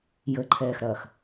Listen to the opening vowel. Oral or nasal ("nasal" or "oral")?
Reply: oral